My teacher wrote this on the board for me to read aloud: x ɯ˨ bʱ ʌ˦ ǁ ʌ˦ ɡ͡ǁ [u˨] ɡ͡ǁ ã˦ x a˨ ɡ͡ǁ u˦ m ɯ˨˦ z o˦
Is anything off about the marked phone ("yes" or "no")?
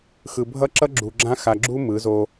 no